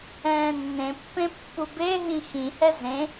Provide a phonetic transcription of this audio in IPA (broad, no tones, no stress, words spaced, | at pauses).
ɛ̃ːnːẽpːẽ pːubeɦĩ xĩhɛ zẽ